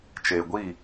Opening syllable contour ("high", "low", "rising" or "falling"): low